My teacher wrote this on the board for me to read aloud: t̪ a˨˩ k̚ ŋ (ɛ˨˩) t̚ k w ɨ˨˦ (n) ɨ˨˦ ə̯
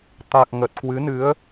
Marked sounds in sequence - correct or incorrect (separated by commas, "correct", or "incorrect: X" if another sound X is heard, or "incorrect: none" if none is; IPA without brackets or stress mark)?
incorrect: ə˨˩, correct